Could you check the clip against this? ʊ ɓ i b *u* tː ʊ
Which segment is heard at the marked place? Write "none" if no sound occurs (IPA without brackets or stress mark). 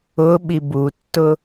u